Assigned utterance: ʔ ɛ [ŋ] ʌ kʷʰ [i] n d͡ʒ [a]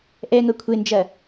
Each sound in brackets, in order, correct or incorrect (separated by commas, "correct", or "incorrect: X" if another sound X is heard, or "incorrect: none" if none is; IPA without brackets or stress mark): correct, incorrect: e, incorrect: ɐ